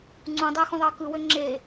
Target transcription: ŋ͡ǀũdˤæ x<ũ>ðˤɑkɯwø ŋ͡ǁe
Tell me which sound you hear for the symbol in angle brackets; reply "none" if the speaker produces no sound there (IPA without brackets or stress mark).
ũ